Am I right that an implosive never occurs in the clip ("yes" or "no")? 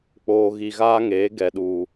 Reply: no